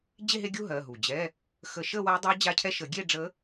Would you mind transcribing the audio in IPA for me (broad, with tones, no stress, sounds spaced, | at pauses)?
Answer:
d͡ʑ e˥˧ ɦ e˥˧ ɡʲ u˥˧ ɦ ɜ˩˧˩ ɦ u˩ d͡ʑ ɛ˧˥˧ | x ə˨˩˦ ʃ ə˥˧ w a˧˥ dˤ ɜ˧˥ d͡ʑ a˧˥ cʰ ɛ˧˥˧ ʃ ə˨˩˦ ɡʲ e˥˧ ɖ͡ʐ ə˧˥